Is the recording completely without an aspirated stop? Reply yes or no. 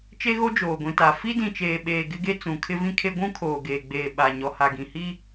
no